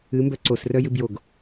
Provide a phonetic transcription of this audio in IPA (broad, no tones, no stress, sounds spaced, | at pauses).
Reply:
ɨ m b œ ǀ o s r œ j ɨ b j o ɡ